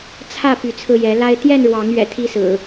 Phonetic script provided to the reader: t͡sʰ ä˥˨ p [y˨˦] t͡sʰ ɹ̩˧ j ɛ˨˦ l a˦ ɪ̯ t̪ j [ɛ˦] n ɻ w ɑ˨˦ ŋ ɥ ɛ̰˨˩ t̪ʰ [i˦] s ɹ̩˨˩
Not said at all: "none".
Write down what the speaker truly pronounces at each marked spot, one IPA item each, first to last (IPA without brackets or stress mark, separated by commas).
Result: y˨˦, ɛ˥˨, i˦